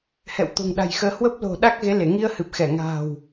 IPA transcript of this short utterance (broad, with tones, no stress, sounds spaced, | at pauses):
h ɛ̰˧˨ w t̪ o̤˨˩ ŋ ɗ a̤˨˩ j x əː˨˦ h w ə˦˥ p̚ l o̤˨˩ ɗ a˦˥ k̚ ɣ e˨˦ l e˧˩ ŋ i˧ ə̯ h ɨ˨˩ p̚ x ɛ˧˩ ŋ a̤ː˨˩ w